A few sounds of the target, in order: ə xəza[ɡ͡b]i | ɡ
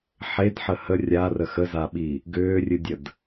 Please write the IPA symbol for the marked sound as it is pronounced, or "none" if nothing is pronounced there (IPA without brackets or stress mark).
ɓ